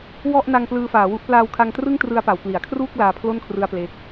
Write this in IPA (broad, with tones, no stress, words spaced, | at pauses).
wɔ˥˩ʔ na˧ŋ plɯː˧faː˩˦wu˦˥ʔ plaː˧wkʰa˧ŋtrɯ˥˩ŋ trɯ˧a̯pa˩˦wkli˩˦a̯kʰruː˥˩k̚ laː˧pʰlo˥˩nkʰrɯ˧a̯ ple˦˥k̚